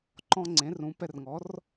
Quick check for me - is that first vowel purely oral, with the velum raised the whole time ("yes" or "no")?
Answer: no